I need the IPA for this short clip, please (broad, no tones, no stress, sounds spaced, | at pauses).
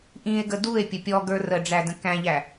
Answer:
ʔ ĩ e̯ ɡ ə d u e̯ pʲ ə pʲ ɔ ɡ ə˞ r ə ɖ͡ʐ æ d ə̃ k æ̃ ʎ æ